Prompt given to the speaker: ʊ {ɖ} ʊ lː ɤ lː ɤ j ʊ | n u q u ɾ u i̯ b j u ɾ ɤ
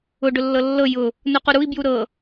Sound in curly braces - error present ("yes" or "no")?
no